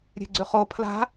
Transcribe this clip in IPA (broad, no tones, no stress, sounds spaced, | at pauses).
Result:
ɾʲ e̤ ɡ͡ǀ ʉ χ o pʰ l a̤